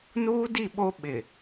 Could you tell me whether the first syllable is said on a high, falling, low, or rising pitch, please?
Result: high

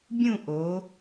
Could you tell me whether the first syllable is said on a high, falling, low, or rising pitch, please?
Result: falling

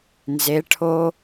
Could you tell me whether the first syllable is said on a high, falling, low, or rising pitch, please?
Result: rising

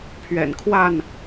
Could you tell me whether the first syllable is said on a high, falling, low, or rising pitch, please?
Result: low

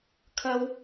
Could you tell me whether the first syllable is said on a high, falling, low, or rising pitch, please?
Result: high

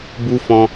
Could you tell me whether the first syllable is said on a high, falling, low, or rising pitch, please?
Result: high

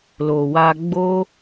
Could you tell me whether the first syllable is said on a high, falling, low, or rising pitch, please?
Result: low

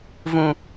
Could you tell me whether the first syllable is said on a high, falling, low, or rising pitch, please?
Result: low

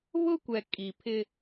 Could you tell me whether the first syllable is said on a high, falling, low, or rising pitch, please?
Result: high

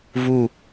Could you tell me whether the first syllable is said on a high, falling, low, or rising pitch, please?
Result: falling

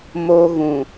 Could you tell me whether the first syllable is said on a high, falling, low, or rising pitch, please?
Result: high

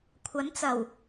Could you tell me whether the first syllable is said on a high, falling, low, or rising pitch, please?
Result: rising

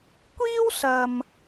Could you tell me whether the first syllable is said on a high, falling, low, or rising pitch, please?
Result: high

